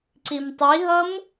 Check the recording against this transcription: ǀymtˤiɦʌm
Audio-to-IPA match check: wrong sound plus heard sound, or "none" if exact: y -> i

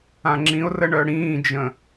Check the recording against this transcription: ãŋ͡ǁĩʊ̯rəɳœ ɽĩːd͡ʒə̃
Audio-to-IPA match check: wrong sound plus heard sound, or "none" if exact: none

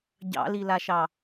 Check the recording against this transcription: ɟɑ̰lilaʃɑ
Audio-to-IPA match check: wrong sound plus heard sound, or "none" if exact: none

